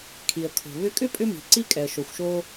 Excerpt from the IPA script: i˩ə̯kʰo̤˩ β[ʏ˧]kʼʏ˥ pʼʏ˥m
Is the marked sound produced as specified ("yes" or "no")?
yes